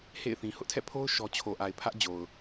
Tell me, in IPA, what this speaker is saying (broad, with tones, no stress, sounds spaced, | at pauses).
h ḛ˦˨ ɪ̯ θ ĩ˨ h ʊ˦ ʔ tʰ ɛ̰˦˨ pʰ o˦ ʊ̯ ʃ ɔ˦ t͡ɕʰ o˨ ʔ a˨ ɪ̯ pʰ ä˦ ʔ d͡ʑ o˨ ʊ̯